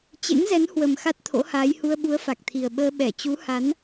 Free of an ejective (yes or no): yes